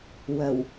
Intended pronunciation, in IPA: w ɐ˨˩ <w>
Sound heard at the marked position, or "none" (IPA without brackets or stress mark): w